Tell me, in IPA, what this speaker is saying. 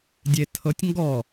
dʲ e tʰ ɤ tʲ ŋ ɡ ɔ

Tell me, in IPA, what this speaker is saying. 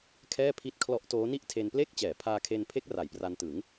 kʰ ɛː˥˩ pʰ i˦˥ t̚ kʰ l ɔ˦˥ ʔ t oː˦˥ n i˥˩ ʔ tʰ e˧ n p l e˥˩ k̚ t͡ɕ ɛː˩˦ pʰ aː˧ kʰ e˧ n pʰ e˦˥ k̚ r a˩˦ j p r a˧ n t ɯ˩˦ ŋ

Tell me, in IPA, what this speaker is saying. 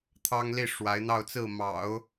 t̪ʰ ɑ˥ ŋ l i˥˩ ʂ w a˧˥ ɪ̯ n̪ ɑ˥˧ ʊ̯ t͡s ɹ̩˥˩ m ɑ̰˨˩˦ ʊ̯

